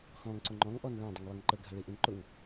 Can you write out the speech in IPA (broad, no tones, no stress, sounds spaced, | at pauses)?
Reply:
x ɔ̃ ŋ ǀ ʊ ŋ͡ǃ ɔ̃ ŋ ʔ ɔ n ɭ ã dˤ ə ŋ lˠ i ŋ ǃ ə ɡʱ a ɭ i ʔ ĩ n ǃ ʊ ŋ